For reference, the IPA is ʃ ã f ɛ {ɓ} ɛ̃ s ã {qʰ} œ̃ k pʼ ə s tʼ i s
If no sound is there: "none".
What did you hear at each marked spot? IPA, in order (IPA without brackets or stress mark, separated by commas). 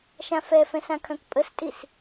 f, kʰ